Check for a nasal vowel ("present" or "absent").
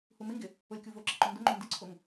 absent